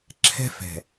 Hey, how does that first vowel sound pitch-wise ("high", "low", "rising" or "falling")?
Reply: high